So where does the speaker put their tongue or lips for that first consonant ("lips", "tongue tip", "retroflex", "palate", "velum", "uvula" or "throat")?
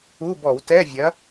lips